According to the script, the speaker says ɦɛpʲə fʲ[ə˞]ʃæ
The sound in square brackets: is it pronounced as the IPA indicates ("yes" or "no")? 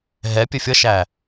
no